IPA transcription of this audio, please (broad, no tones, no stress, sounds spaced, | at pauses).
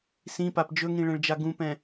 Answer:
s ĩ p a p d͡ʒ ɵ ŋ ĩ ɭ ɛ̃ ɭ d͡ʒ a ɡ ũ p ɛ̃